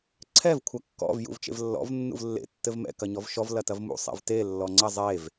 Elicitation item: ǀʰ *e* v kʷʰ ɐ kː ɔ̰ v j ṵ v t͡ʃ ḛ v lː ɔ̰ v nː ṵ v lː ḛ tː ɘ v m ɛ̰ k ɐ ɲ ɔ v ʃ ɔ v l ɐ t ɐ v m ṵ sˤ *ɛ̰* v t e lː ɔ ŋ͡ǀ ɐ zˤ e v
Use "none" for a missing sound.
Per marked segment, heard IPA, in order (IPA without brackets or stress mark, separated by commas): ɛ, ɛ̰